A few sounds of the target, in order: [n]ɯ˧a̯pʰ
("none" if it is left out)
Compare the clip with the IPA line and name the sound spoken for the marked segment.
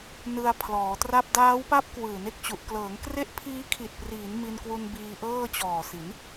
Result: n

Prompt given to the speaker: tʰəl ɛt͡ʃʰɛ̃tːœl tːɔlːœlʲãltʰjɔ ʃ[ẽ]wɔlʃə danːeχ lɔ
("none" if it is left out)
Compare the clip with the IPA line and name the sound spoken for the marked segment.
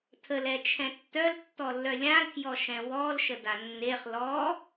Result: ɛ̃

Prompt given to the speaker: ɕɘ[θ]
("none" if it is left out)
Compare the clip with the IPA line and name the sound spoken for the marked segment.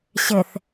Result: θ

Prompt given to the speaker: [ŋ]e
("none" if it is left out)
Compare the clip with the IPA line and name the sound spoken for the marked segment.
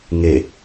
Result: ŋ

